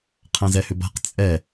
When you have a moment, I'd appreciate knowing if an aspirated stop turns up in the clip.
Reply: yes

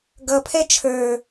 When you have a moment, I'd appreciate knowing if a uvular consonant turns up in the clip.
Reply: no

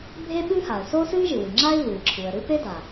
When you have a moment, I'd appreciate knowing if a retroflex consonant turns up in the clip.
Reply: no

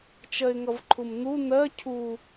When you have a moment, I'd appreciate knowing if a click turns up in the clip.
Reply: yes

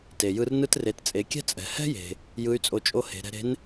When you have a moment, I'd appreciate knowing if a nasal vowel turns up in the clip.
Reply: no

